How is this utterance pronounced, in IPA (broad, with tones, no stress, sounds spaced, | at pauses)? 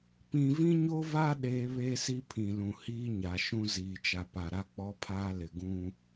p ĩ˦ v ĩ˦ ɲ o˦ v a˦ ɗ eː˦ β eː˦ s i˦ pʰ ĩ˨ l ũ˨ h iː˦ ɲ a˨ ʃ ũ˦ z iː˨ t͡ʃ a˨ p a˨ ɾ a˦ k͡p ɔ˦ pʰ aː˦ l ɪ˨ ɡ ũ˦